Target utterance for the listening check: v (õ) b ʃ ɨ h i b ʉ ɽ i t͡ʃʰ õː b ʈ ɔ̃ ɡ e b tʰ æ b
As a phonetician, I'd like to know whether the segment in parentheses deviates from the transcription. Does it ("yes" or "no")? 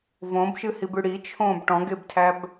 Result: no